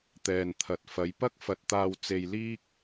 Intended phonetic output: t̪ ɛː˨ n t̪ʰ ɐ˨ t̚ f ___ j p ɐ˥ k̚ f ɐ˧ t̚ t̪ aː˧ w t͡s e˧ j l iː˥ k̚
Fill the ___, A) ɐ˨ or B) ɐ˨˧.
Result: B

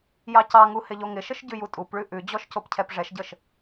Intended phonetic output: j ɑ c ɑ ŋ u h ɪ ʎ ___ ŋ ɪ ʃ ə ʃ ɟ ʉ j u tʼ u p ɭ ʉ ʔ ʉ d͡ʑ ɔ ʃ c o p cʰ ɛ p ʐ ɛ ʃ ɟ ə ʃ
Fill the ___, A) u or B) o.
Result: B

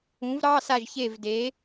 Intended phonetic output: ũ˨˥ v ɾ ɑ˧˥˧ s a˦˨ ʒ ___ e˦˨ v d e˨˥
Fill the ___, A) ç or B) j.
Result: A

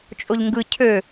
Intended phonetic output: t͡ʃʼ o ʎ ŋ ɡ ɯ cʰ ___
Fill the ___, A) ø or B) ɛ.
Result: A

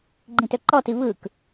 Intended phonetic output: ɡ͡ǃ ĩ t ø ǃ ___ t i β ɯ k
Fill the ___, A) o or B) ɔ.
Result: B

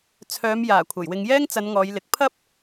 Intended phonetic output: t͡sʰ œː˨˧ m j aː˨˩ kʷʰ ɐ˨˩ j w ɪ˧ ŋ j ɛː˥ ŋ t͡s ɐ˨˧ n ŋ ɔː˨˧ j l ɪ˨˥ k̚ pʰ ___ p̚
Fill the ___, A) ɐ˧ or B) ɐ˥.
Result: B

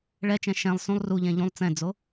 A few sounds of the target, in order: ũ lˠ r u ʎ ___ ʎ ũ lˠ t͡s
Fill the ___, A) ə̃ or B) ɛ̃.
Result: B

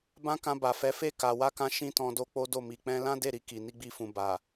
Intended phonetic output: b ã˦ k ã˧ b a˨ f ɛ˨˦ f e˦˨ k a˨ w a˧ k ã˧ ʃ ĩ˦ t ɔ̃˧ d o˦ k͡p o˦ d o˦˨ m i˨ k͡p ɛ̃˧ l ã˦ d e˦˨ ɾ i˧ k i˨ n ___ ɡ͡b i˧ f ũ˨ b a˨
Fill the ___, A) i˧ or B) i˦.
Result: A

